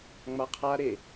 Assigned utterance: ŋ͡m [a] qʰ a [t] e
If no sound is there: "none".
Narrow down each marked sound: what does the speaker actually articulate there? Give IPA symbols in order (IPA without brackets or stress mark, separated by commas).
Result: a, ɾ